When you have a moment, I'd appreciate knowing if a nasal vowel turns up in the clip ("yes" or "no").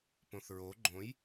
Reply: yes